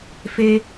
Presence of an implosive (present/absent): absent